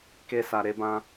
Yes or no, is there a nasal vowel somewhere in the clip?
yes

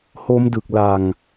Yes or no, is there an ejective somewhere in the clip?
no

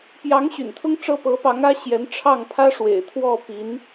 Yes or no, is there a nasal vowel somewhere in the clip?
no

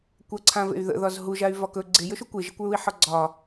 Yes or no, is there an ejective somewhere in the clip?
no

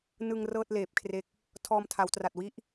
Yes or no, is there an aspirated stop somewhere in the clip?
yes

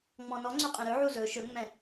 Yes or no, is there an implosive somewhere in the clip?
no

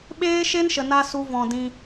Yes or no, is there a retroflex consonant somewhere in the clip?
no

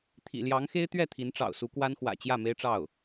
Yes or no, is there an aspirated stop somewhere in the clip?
yes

